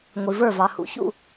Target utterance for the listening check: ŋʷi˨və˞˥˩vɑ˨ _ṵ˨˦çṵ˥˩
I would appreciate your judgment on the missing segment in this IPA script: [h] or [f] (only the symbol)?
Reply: h